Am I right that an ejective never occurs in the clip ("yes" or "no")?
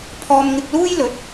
yes